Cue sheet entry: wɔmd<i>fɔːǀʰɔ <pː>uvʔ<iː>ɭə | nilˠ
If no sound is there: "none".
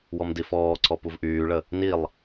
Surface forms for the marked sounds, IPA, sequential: i, p, yː

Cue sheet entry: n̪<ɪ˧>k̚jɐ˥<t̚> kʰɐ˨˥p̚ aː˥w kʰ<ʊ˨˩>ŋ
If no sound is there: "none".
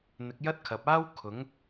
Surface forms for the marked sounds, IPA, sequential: ɪ˨˥, t̚, ʊ˨˥

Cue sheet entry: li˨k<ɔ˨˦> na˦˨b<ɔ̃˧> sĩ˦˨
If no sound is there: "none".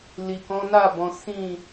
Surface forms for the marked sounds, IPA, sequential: ɔ̃˨˦, ɔ̃˨˦

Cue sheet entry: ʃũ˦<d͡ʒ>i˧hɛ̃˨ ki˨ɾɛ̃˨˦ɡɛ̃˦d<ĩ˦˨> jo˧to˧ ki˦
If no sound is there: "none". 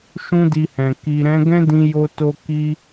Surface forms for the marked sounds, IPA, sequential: d, ĩ˧

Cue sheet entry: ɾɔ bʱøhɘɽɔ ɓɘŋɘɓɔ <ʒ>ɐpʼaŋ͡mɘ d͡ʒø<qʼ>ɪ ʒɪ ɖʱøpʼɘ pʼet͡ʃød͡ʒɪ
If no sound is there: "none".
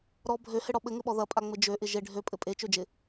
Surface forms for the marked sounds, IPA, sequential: ð, ʔ

